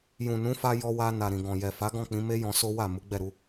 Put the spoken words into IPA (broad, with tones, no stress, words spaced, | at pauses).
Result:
jũ˨nũ˨˦fa˧ jɔ˧wa˧ na˨ɾĩ˨ɡɔ̃˨ jɛ˨fa˨˦ ɡɔ̃˦˨k͡pĩ˨˦ me˦jɔ̃˧ so˦wa˦˨ mu˨˦ɡ͡bɛ˦˨ɾu˨˦